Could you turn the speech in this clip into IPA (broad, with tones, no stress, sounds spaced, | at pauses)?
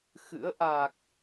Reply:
x ɨ̰˧˥ ə̯ ʔ a˨˩ k̚